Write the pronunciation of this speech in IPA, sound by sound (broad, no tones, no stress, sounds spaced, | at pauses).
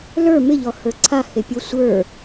l ə˞ m ɪ ʎ ɔ h ə˞ ǀʰ a h e pʲ o sʷ ə˞